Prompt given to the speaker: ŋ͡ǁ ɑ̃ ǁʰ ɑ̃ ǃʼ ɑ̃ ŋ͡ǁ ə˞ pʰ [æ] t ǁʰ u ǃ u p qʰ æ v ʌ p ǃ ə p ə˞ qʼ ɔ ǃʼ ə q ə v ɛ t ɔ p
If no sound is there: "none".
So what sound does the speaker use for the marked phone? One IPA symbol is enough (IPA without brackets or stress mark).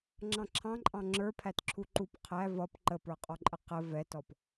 æ